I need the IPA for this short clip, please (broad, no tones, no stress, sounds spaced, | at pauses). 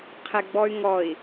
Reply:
qʰ ɛ ɡ͡b ɔ y̯ ŋ ɔ i̯